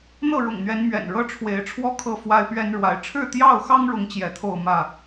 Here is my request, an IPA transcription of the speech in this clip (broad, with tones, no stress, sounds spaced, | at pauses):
n̪ ɤ˥˨ ɻ ʊ̰˨˩ ŋ n̪ ɥ ɛ˨˦ n m ɥ ɛ̰˨˩ n ɻ ɤ˦ ʈ͡ʂʰ w e˨˦ ɪ̯ ʈ͡ʂʰ w ɔ˥˨ kʰ ɤ˥˨ f w a˦ ɪ̯ p ɥ ɛ˦ n ɻ w a˨˦ ɪ̯ ʈ͡ʂʰ ɻ̩˥˨ t̪ j ɑ˥˨ ʊ̯ x ɑ˦ ŋ ɻ ʊ˨˦ ŋ t͡ɕ j ɛ˨˦ t̪ʰ o˥˨ ʊ̯ m ä˥˨